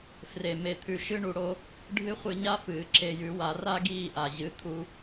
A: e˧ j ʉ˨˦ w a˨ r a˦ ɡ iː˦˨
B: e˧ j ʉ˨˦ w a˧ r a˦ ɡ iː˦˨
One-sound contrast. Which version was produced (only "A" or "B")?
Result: B